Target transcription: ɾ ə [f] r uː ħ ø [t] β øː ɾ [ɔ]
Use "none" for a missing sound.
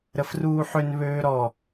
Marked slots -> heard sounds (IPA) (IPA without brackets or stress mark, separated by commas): f, n, ɔ